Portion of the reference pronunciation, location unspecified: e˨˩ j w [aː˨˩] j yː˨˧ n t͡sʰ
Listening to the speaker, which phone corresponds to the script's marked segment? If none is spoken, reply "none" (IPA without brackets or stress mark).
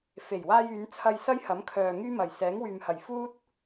aː˧